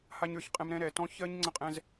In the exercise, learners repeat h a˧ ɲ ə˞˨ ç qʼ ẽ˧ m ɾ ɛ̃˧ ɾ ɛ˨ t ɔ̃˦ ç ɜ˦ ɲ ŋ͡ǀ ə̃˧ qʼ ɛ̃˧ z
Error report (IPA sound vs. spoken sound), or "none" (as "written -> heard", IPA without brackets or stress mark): ẽ˧ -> ɛ̃˧